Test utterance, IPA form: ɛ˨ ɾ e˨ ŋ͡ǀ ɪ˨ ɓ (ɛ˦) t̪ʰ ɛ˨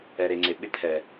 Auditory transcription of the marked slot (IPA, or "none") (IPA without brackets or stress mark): ɪ˦